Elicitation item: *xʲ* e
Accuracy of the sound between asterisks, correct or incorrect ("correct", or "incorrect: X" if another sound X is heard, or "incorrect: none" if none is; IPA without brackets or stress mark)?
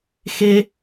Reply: incorrect: x